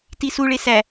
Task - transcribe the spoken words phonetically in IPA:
tisuɭe sæ

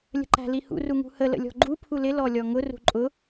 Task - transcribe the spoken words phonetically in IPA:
lʲə̤ǃæ̤lihṵ ruŋṳhə lə̰lʲɔ̤ɡ͡ǃu pʰulɪ lɔlʲɔŋʊ rṳǃʼʊ

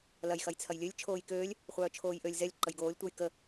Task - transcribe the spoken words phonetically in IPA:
lɐj xɐjt͡sʰɐjlʲølʲ t͡ʃʰoːjkøːlʲ | χʷœːt͡ʃʰoːjʔølʲ zɛlʲ ǃəjɡoːlʲ tʷəj kə

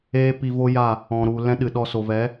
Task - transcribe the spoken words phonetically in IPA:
eː˦pi˧vo˦ ja˦˨ | ɔ̃˨ɾu˨ lɛ̃˦ɗɨ˨ɗɔ˧ so˨vɛ˨˦

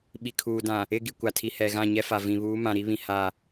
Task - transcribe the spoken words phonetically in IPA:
ɓi˨kʰuː˨ dã˨ | ɪ˦˨ ɡi˨kʷa˨tʰi˨ hɛ˨ɣã˦˨ɲɛ˦fa˨ vĩ˨ βuː˨˦ mã˨ ɾi˦βĩ˨ ha˦˨

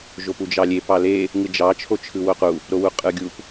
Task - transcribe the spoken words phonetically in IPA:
ʒopud͡ʒɑlʲe pɑle | ŋɯd͡ʒɑ t͡ʃʰot͡ʃʰɯwoqu | ɾowuqʼɯɡʲup

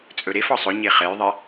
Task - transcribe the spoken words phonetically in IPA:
t͡sʼɵɾef ɒsˤɵ ɲeχɛjðˤɛ

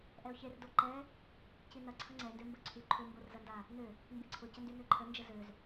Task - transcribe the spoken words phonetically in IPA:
ʔɛʊ̯çerdo ǃɛ | cinɐ ǀʰɐŋ͡ǀɛ ndømbəǀʰy ǃʰʊmborzɐnda | nø | mbiǀʰʊcəndy nøǃʰə nd͡ʒəzøz

